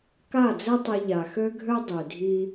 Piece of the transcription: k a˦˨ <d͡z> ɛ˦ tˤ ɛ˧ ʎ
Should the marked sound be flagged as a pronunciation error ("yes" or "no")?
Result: no